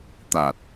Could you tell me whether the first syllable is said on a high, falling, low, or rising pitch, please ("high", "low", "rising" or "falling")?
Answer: low